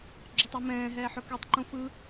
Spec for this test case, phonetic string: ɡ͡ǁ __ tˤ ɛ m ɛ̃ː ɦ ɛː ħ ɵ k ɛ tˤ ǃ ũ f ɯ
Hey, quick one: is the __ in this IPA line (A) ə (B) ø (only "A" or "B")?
A